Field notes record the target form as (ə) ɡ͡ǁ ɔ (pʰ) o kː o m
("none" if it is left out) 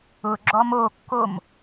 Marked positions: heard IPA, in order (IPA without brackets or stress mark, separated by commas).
ʊ, m